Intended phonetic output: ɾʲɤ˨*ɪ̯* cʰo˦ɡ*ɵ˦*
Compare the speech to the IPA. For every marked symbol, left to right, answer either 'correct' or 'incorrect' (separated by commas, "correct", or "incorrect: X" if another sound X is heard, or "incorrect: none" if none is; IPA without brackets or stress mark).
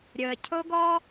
incorrect: ə̯, incorrect: ɔ˦